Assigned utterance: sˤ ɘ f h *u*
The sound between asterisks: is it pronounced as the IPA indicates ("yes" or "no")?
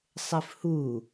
yes